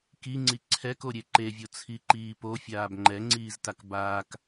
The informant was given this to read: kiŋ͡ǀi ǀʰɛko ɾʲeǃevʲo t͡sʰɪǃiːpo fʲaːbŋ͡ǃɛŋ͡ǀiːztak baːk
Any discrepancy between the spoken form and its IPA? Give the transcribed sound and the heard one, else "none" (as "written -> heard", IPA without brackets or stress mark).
ɪ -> i